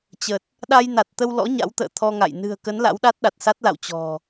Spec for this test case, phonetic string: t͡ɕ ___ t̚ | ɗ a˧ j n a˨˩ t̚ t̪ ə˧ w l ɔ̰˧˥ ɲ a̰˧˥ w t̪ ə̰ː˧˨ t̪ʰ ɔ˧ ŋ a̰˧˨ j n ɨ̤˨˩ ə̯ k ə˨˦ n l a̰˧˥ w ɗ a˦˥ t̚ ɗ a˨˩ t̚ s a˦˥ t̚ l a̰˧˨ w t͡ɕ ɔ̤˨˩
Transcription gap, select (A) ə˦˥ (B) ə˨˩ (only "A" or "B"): B